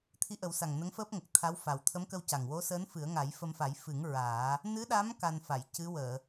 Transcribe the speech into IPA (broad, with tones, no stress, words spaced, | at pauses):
t̪ʰi˧˥ʔə˨˩˦wsa˨˩ŋ nə˧˥ŋfəː˦˥p̚ŋə˨˩k̚ t̪ʰa˧˥wfa˨˩w t̪ʰə˧˥mkə˧w ca˨˩ŋwo˧˥səː˧˥n fɨ˨˩˦ə̯ŋa˨˩˦j fə˧mfa˨˩˦j fɨ˨˩˦ŋ ɹaː˨˩˦ | nɨ˧˥ɗa˧˥m ka˧nfa˨˩˨j cɨ˧˥wəː˨˩˨